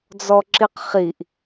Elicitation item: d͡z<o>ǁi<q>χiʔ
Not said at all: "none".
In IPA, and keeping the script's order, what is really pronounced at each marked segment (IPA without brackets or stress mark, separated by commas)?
ɔ, q